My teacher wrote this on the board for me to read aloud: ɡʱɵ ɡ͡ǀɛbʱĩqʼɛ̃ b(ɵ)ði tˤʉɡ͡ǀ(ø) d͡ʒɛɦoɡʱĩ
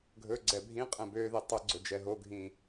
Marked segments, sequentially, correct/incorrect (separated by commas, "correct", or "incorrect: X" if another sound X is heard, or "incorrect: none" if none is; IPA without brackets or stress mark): incorrect: ø, incorrect: ɵ